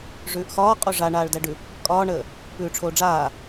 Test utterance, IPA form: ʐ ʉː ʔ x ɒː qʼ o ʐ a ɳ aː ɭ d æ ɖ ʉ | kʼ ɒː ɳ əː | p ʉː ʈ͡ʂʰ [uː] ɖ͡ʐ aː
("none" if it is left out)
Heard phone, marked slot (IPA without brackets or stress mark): oː